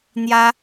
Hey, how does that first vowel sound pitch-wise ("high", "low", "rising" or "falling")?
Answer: high